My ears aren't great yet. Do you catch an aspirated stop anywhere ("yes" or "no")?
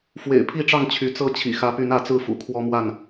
yes